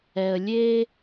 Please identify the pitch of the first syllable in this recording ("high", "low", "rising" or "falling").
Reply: low